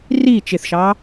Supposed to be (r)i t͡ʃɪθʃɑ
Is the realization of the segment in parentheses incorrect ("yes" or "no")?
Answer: no